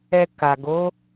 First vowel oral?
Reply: yes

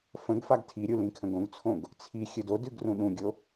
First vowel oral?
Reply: no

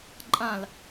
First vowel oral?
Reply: no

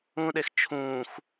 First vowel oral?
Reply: no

